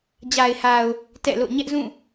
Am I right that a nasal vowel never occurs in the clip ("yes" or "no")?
no